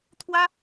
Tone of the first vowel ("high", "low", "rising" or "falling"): high